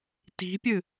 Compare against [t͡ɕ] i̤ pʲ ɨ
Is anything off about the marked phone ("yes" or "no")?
yes